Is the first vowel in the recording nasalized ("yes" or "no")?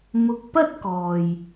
no